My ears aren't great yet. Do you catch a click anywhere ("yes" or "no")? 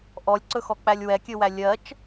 yes